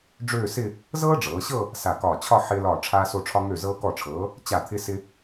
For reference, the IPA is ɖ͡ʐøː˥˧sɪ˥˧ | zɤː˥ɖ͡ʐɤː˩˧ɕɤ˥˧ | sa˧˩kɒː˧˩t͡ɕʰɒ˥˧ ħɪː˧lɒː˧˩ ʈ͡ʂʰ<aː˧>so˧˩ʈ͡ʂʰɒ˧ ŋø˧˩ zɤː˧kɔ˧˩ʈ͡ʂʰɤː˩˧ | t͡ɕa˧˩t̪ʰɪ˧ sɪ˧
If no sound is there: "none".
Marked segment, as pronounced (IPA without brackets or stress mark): aː˧